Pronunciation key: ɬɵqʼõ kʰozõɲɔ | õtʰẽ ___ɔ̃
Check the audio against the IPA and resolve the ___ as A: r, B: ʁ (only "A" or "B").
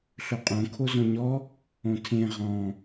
B